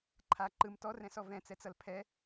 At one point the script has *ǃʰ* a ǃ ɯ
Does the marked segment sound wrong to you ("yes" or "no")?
no